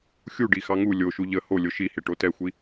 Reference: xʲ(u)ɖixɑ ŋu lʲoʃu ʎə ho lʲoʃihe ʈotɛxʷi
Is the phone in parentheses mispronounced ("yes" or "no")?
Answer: no